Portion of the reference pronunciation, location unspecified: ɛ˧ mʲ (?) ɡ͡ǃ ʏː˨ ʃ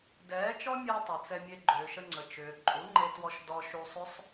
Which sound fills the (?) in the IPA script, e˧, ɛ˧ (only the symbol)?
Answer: e˧